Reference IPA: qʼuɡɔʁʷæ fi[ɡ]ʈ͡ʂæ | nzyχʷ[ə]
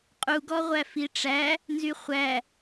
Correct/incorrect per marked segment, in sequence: incorrect: none, incorrect: æ

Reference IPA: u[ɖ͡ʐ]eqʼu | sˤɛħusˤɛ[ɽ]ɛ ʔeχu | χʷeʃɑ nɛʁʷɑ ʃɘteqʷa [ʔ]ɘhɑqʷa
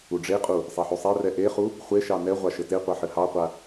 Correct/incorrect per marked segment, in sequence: correct, incorrect: r, incorrect: ħ

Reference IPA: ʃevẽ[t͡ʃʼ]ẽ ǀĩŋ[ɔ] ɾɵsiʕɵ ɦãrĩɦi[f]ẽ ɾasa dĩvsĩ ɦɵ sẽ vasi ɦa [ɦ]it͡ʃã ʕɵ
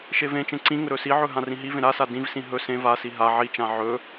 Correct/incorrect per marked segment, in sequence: incorrect: t͡ʃ, incorrect: ɵ, incorrect: v, incorrect: ʕ

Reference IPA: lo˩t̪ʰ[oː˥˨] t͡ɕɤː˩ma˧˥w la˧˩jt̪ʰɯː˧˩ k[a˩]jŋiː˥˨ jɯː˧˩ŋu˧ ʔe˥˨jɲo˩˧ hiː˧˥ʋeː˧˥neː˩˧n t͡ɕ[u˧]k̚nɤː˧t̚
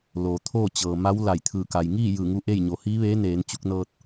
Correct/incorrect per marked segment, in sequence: correct, correct, correct

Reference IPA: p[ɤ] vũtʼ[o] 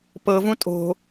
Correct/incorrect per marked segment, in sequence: correct, incorrect: o̤

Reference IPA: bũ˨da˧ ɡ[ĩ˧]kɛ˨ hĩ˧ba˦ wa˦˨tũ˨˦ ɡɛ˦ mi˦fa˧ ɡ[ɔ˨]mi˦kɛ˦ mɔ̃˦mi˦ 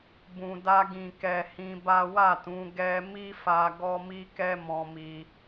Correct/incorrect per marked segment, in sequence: incorrect: ĩ˨, incorrect: ɔ˦

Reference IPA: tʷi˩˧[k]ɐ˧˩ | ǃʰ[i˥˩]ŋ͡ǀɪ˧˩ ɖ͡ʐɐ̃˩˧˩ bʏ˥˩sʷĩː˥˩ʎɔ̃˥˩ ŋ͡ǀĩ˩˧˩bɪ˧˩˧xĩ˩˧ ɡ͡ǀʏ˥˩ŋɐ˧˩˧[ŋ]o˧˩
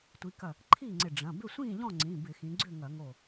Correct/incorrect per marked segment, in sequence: correct, incorrect: iː˥˩, correct

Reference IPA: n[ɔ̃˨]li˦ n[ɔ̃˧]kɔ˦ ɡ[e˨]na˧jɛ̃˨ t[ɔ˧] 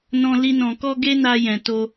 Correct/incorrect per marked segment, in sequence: incorrect: ɔ̃˦, correct, incorrect: e˦, incorrect: o˧

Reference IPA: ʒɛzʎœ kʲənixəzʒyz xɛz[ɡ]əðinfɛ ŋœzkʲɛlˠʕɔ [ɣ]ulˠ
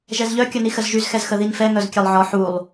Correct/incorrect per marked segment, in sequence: incorrect: x, incorrect: ħ

